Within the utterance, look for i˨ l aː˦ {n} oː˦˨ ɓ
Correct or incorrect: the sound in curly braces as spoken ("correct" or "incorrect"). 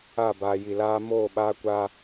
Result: incorrect